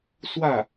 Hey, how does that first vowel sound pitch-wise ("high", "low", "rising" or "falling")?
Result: falling